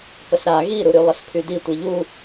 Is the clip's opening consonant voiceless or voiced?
voiceless